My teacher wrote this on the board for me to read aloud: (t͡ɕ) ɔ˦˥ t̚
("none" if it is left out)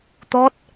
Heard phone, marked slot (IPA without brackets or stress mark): t̪